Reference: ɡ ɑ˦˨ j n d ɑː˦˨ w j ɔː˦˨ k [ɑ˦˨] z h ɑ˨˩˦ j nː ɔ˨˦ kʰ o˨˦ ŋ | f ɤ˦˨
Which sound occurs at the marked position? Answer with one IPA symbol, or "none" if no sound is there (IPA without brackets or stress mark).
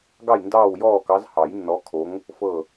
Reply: ɑ˨˦